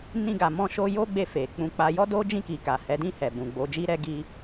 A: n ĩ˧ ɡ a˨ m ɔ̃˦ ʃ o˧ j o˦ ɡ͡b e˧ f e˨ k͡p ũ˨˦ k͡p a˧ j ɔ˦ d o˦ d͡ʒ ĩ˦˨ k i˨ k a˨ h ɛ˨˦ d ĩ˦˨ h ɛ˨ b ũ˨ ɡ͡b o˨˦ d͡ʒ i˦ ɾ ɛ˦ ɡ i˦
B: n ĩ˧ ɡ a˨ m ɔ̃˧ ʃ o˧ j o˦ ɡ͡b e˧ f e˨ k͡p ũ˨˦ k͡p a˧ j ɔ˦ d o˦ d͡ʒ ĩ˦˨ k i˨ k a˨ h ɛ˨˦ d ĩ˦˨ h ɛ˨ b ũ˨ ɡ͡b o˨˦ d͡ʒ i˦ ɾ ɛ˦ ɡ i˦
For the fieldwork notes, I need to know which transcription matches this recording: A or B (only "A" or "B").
B